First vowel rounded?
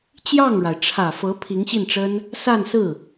no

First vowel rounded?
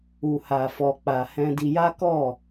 yes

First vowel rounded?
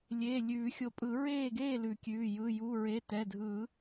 no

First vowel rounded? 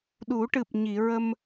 yes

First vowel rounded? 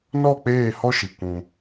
yes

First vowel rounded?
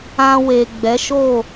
no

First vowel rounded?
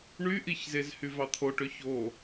yes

